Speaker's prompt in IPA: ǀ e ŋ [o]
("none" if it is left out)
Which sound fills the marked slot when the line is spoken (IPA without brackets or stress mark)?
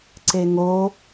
o